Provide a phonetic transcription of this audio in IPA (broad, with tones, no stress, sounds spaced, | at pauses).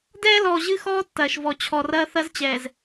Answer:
d ɛː˦ l ɔː˨ ʑ ɨ˦ x ɔː˦ tː ɐː˨ ʃ v ɔ˨ t͡ɕʰ ɔ˨ r ɐː˦ θ ɐ˦ z t͡ɕ ɛː˨ z